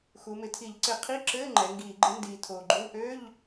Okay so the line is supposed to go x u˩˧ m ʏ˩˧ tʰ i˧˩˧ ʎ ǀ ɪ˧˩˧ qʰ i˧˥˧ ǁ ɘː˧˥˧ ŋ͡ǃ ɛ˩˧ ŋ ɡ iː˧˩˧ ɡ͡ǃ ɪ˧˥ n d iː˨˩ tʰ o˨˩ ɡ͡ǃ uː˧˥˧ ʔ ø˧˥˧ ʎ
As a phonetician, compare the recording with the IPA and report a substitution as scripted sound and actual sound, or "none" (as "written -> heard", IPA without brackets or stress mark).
ʏ˩˧ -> ɪ˩˧